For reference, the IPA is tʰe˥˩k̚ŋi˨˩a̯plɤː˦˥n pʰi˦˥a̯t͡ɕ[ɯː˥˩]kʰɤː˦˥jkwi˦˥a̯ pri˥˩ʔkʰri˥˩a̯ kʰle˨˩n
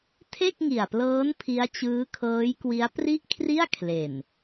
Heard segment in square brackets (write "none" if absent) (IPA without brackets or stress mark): ɯː˦˥